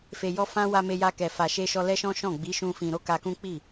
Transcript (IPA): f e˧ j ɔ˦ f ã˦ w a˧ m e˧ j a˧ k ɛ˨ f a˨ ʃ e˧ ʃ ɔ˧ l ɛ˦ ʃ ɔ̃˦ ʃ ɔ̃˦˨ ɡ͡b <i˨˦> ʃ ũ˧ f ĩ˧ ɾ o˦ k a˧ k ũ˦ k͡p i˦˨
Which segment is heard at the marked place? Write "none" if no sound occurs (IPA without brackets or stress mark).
i˨˦